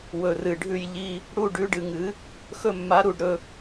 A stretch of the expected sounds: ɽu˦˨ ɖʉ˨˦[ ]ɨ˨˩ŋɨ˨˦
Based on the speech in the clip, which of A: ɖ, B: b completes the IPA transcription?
A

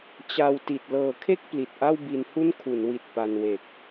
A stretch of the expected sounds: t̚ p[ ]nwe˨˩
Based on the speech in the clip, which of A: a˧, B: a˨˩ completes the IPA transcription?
A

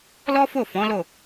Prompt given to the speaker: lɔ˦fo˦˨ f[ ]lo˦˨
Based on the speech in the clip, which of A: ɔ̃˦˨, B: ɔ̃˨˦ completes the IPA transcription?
B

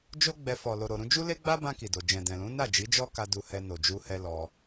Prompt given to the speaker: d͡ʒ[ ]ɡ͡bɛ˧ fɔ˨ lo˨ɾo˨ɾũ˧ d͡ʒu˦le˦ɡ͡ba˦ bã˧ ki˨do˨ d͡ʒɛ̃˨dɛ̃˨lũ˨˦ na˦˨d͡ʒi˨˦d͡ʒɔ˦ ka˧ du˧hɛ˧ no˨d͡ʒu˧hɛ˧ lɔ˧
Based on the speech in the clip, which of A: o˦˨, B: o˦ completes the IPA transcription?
B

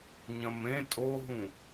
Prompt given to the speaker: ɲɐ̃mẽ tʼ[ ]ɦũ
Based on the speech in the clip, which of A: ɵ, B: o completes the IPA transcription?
B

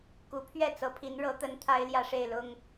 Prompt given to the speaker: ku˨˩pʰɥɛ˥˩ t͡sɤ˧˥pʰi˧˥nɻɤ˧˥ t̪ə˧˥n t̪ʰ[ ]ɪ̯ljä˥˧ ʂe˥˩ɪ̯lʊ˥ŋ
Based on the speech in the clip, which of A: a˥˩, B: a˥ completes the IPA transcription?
B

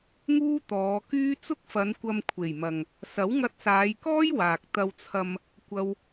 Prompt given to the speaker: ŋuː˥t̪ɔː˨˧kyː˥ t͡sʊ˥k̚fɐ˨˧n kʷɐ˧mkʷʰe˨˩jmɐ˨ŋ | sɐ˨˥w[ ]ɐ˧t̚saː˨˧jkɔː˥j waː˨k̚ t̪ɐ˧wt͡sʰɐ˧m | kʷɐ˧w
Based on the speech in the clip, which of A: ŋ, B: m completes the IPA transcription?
A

